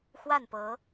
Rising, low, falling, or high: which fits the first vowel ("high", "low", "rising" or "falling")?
falling